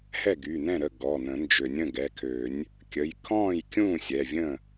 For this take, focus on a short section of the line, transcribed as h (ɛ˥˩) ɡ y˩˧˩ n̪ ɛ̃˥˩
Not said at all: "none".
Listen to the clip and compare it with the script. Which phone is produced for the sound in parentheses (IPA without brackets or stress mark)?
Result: ɛ˥˩